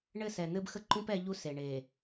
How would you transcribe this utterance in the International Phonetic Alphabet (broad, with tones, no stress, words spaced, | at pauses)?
ɳɘ˦˨sɛ˨ n̪ɘ˦bxə˦ǃũ˦p ɛ˦ʎu˦ se˨ɳe˨